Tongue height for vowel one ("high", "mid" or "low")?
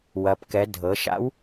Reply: low